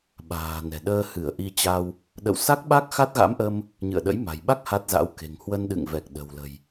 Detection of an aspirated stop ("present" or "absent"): absent